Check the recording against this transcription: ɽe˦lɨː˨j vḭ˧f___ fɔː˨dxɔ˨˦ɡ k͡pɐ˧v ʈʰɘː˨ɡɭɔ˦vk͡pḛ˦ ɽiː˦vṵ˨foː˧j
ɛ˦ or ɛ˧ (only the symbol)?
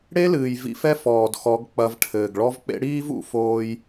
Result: ɛ˦